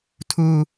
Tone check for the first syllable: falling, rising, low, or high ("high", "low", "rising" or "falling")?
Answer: low